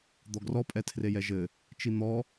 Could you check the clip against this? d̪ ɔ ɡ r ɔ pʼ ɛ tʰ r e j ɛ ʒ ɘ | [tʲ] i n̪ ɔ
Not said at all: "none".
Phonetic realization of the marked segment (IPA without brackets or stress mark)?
t͡ʃ